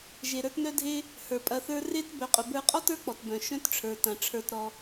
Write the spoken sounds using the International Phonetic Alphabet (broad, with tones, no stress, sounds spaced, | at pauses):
ʒ e˩ ɾ ə˞˦ t n œ˥ dʱ e˥ | h ə˞˩ pʼ ɐ˨ θ ə˞˦ r e˥ t b œ˨ qʼ ʊ˨ b ə˞˦ qʼ ɔ˥ t ə˞˦ k͡p ɔ˩ t b œ̃˩ ʃ œ̃˥ t ʈ͡ʂʰ ə˞˩ t ɐ̃˩ ʈ͡ʂʰ ə˞˨ t ɾ ɔ˨